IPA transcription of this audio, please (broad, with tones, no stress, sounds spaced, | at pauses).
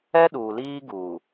ɛ˦ ɗ uː˨ l iː˦ ɡ uː˨